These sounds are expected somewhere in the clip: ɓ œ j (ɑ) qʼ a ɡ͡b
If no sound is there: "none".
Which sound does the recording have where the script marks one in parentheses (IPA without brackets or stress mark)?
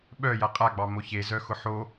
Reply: a